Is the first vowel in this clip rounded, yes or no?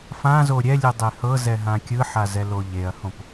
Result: no